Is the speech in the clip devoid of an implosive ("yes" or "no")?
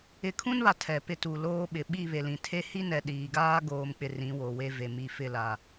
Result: no